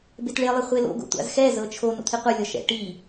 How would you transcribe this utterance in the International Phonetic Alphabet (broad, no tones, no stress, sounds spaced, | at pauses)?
b e t ɭ e lˠ e χʷ e l o̰ ɡ o̰ tʷ a̰ z x ɛ z ɤ t͡ʃʰ o n o̰ t̪ʰ i qʷ ɤ lʲ ɔ ʃ ɛ̰ ʈ i